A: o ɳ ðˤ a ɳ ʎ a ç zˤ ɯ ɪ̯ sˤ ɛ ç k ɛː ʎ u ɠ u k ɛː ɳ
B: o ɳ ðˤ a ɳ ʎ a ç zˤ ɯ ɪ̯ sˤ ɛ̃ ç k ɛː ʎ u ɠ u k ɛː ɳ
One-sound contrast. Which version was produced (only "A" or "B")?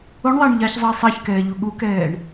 A